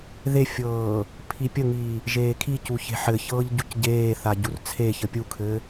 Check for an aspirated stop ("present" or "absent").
present